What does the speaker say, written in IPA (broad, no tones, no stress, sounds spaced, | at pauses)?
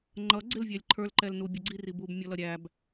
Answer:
ŋ͡ǃ ʌ ɡ͡ǀ ɪ l vʲ æ lʲ ǃʰ ə˞ l ǃ ɛ l n u bʲ ə ɡ͡ǀ i r i b u b mʲ ɔ l ʌ ɾʲ æ b